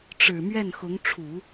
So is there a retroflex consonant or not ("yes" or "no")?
yes